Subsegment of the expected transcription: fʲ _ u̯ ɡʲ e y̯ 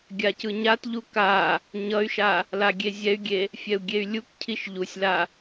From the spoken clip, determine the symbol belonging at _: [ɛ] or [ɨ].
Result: ɛ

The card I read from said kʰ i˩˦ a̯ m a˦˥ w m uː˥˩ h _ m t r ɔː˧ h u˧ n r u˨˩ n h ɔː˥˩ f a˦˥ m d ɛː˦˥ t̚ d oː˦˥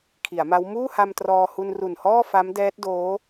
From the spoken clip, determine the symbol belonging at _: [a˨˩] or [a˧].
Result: a˧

